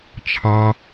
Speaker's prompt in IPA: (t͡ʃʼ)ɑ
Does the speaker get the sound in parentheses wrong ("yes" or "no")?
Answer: yes